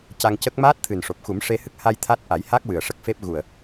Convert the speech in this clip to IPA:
c a˧ ŋ c ə˦˥ k̚ m aː˦˥ t̚ t̪ʰ ɨ˨˩ n ʂ o˨˩ p̚ x u˨˩˦ m ʂ e˧ h ɨ˦˥ k̚ h a˧ j t̪ʰ a˦˥ t̚ ʔ a˨˩˦ j h a˦˥ k̚ w ɨ˨˩ ə̯ ʂ ə˦˥ k̚ f e˦˥ p̚ ɣ u˨˩ ə̯

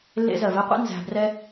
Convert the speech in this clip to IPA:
lː ḛ˧ z ɜ˨ v ɛ˧ qʷ ḛ˦ n z æ̤˧ b r ɛ˦

